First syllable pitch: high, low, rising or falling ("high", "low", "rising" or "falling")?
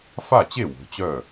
falling